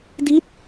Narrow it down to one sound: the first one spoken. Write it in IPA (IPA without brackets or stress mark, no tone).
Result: d